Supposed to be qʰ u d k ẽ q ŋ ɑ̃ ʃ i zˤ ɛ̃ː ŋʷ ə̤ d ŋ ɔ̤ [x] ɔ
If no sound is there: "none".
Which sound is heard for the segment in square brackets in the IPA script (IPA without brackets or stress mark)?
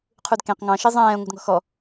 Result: x